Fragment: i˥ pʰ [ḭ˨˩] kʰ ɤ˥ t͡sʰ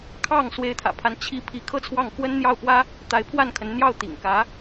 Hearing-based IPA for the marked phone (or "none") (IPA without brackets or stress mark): i˥˩